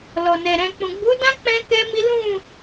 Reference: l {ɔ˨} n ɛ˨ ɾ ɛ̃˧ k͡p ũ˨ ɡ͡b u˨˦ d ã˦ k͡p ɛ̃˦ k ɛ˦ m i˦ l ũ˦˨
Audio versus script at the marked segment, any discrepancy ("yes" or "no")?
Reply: no